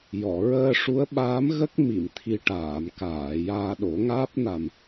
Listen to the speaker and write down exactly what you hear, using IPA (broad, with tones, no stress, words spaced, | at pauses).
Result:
jɔ˨˩˨ ɹəː˧ʂu˧˥ə̯ɓaː˧˥m ɣə˦˥k̚ mi˨˩˨mt̪ʰi˨˩ ʈaː˨˩˨mkaː˨˩˨ jaː˧ɗo˨˩˦ŋaː˦˥p̚ na˨˩m